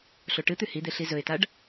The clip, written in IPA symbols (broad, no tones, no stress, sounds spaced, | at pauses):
ɬ o ʈ ɨ t̪ ʉ h i d̪ e ɬ i z ɵ ɪ̯ t a ɖ